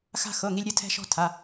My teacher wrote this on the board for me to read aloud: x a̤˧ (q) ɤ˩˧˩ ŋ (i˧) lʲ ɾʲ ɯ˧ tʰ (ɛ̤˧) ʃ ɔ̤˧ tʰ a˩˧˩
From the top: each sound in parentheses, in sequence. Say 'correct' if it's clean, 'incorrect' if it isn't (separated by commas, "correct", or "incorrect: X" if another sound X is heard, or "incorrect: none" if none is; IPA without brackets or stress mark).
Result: incorrect: x, correct, correct